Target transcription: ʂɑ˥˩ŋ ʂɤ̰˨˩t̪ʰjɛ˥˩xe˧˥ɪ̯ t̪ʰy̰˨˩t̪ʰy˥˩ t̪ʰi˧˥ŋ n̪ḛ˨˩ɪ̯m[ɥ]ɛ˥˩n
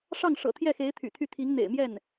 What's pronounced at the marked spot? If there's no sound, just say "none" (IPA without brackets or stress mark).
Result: j